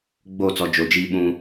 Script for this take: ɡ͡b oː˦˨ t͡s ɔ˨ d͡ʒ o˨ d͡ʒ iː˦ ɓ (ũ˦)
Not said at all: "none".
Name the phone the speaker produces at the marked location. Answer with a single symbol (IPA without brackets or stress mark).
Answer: ũ˦